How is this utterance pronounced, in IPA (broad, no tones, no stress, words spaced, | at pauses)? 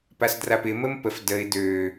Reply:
pasdrapɪ məmpəf dəɪ̯ dø